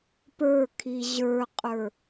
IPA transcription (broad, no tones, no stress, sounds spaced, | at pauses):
p ə˞ kʰ i ʑ ə˞ qʼ ə˞